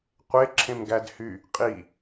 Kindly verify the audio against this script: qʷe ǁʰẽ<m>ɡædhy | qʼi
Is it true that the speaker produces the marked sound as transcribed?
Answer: yes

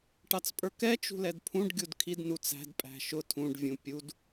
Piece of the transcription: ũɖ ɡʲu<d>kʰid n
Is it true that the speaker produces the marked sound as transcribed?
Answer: yes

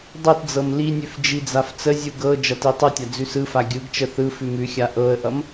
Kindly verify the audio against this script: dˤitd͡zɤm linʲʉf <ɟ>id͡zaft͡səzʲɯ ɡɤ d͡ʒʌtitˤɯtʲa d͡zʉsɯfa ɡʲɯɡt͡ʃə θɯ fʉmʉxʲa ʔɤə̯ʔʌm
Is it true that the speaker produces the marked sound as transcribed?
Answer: no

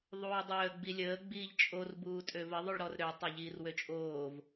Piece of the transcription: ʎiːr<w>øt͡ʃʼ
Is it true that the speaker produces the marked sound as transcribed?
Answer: yes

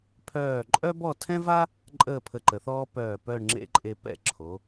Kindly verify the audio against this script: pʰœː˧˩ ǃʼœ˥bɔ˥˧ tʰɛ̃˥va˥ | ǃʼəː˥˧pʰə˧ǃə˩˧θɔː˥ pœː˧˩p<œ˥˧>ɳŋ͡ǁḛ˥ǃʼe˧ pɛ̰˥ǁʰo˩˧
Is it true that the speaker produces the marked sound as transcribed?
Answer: yes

